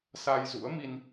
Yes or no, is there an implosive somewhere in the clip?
no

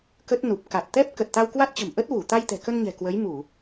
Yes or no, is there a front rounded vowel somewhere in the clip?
no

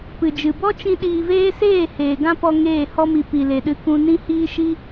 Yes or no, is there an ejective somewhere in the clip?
no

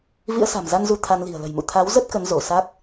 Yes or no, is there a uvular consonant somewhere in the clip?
no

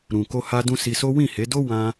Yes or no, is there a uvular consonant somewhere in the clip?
no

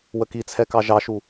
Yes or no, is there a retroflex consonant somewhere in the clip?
no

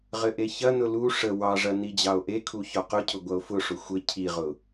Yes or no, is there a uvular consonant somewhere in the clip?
yes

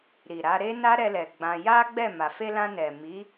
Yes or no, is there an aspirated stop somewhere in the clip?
no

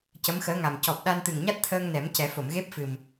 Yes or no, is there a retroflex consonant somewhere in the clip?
no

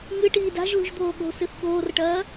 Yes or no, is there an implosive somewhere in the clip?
yes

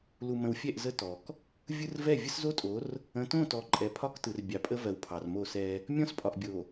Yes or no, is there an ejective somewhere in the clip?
yes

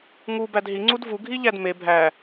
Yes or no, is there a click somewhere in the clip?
yes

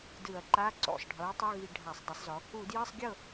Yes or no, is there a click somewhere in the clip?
yes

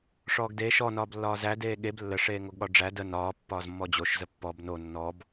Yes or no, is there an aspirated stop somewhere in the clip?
no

